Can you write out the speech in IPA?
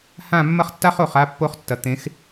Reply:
h ã˦˨ mː ɐ˦ χ tː a˦ χ o˨ χ a˦ pː o˦ χ tː ɐ˨ t̪ ẽ˨˦ x

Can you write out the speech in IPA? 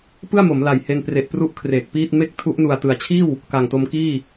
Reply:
p ɯ˥˩ a̯ m o˩˦ m l a˨˩ j h e˧ n p r e˨˩ ʔ p r u˦˥ ʔ kʰ r eː˨˩ k̚ p iː˥˩ t̚ m e˥˩ k̚ tʰ u˦˥ ʔ n u˨˩ a̯ t ɯ˩˦ a̯ t͡ɕʰ iː˥˩ w | k a˨˩ ŋ t o˧ m k iː˥˩

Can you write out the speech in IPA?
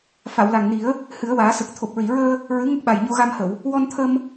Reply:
f a˨˩˨ w l a˨˩ ŋ n i˨˩˦ ə̯ | h ɨ˨˩˦ ə̯ w aː˨˩˦ s ə˨˩ k̚ t̪ʰ o˨˩ p̚ ɹ i˨˩˨ ɹ əː˧ | ɹ ɨ˧˥ ŋ ə˦˥ k̚ ɓ a˨˩ j ɲ o˧ ɣ a˧ m h ə˨˩˨ w | w ɔ˧ n t̪ʰ ə˧ m

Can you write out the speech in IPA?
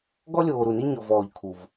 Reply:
ɡ ɔ˥ lʲ oː˨ ɾ u˨ n i˥ ɲ ɔ˨ v ɔː˨ ʎ kʰ u˩ v

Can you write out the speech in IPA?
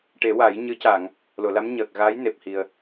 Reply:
ʈ e˨˩˦ w a˨˩˦ j ɲ ɨ˧˥ c a˨˩˨ ŋ | l o˨˩˨ l a˧˥ m ɲ əː˨˩ k̚ ɣ aː˧˥ j n e˨˩ p̚ h i˨˩ ə̯

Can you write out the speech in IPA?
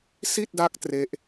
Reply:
s i˥˩ t̚ d a˦˥ k̚ t r e˥˩ ʔ

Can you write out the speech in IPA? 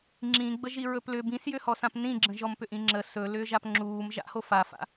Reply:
ŋ͡ǁ ĩ ɡ͡b ə ʒ i ɹ ɵ p l ʏ b ĩ s j ʏ h ɔ s ã p n ĩ ɡ͡ǁ ə̃ ʒ ɔ m p ʏ ʔ ĩ ŋ͡ǁ ə s ɵ l ʏː ʒ a p ŋ͡ǁ uː m ʒ a̰ h o f a f a̰

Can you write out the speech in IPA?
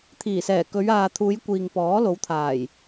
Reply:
t̪ʰ iː˨˩ s ɛː˨˩ k ɵ˨˧ ɥ aː˨ t̪ʰ uː˨˧ j kʷ iː˨ ŋ p ɔː˨˥ l o˨˥ w t̪ʰ aː˨˩ j

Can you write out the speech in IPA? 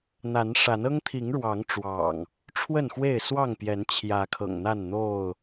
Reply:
n̪ a˨˦ n ʂ a˨˦ n ɤ˦ ŋ t̪ʰ i˨˦ ŋ ɻ w ɑ˨˦ ŋ ʈ͡ʂ w ɑ̰˨˩ ŋ | ʈ͡ʂʰ w ə˥˨ n x w e˥˨ ɪ̯ s w ɑ˥˨ ŋ p j ɛ˨˦ n t͡ɕʰ j ä˨˦ kʰ ɤ̰˨˩ ŋ n̪ a˥˨ n n̪ o˥˨ ʊ̯

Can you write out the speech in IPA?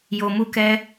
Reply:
j o˨ m u˧ k ɛ˧

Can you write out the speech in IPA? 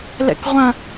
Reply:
l ɛ̰ k ʁʷ ɐ̃

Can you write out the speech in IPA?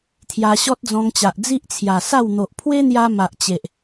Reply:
t̪ʰ j a˧ ɕ ɔ˦ t̚ d͡z ɔ̃˧ ŋ t͡ɕ a˨ ʔ d͡z i˦ ʔ t͡sʰ j a˨˩ s a˥˧ w n̪ o˨ ʔ pʰ w e˦ n̪ j a˧ m a˨ ʔ t͡ɕ e˨ ʔ

